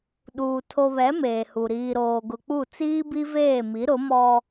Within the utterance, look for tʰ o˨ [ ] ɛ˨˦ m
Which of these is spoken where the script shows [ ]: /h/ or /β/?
β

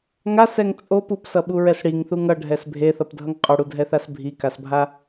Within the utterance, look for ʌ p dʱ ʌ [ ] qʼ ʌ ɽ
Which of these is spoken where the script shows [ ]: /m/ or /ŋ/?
ŋ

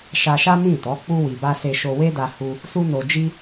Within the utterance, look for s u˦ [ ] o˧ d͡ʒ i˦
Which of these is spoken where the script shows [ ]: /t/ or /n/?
n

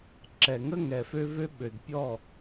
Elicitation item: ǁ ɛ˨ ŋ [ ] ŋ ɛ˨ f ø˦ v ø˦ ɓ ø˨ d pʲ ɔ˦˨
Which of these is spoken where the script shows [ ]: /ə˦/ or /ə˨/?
ə˦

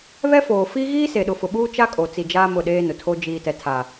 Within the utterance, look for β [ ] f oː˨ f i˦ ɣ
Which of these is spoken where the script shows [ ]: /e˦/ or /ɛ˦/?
ɛ˦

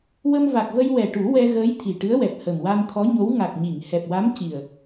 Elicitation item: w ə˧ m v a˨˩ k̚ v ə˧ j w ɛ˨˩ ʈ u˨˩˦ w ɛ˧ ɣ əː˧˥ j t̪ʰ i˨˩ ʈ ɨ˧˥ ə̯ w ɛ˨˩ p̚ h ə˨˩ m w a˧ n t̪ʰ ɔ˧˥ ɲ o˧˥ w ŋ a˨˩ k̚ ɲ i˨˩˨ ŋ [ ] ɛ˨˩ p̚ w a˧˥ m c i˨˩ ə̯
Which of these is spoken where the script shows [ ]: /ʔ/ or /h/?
h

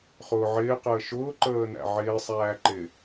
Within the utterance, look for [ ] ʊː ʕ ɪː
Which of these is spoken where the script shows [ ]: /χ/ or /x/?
χ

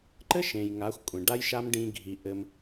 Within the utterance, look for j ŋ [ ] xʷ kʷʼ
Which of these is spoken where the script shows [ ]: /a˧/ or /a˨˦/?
a˨˦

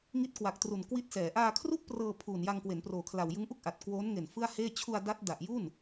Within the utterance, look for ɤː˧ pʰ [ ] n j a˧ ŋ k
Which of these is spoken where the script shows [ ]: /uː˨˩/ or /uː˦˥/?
uː˨˩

